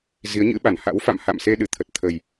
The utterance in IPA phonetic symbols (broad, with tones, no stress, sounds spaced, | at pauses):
z i˨˦ ə̯ ɲ ɨ̰˧˥ ɓ a˧˩ n h a̰˧˥ w f a̰˧˨ m h a̰˧˨ m s e˧ ɗ ɨ˧˩ t̪ʰ ə˨˩ t̚ t̪ʰ ə˨˩ j